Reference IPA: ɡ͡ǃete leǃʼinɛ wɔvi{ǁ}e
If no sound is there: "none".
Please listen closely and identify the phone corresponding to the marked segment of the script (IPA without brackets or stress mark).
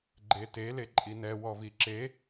ǁ